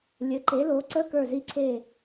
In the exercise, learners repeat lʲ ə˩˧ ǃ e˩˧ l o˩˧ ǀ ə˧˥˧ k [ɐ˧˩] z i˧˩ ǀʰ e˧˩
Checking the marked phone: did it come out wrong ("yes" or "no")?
yes